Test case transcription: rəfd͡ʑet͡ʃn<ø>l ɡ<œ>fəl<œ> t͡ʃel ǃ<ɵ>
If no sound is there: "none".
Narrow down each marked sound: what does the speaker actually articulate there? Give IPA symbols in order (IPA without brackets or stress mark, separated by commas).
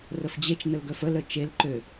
ə, œ, œ, ø